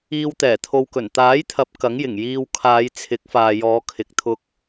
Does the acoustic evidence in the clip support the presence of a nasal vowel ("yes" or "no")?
no